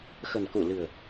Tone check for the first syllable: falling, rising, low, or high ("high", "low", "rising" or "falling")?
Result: low